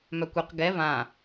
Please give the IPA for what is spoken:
m œ kʷ y q ɡ ɛ v ã

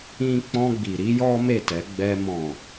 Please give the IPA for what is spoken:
ĩ˦ k͡p ɔ̃˦ ɡ͡b i˧ ɾ i˦ j ɔ˦ m e˦˨ t ɛ˨˦ ɡ͡b ɛ˦ m ɔ̃˦˨

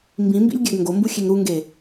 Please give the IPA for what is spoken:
m b ĩ m b ḭ lʲ ɡʲ æ ɡ ŋ ɡ o m b u xʲ e ŋ ɾ u ŋ ɡ e

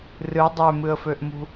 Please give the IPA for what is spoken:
r ɨ dˤ ø m ɨ ə̯ f ø ʔ m ṳ

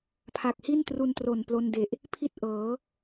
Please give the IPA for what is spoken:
pʰ a˨˩ k̚ h i˥˩ n t r u˧ n t r o˨˩ n p l o˧ n d e˨˩ ʔ | pʰ i˥˩ t̚ ʔ ɤː˩˦

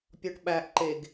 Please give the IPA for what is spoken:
pʲ ɒ ʈ ɓ æ ʔ ǃ e ɡ

